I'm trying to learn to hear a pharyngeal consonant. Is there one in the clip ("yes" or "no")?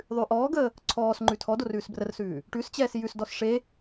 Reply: no